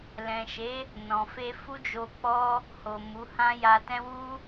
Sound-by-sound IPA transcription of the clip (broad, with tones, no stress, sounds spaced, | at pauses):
l ɛ̃˨ ʃ e˨˦ | n ɔ̃˨ f e˧ f u˦ d͡ʒ o˧ k͡p ɔ˦ | h o˨ m u˨˦ h ã˦ j a˧ t ɛ̃˦ w u˦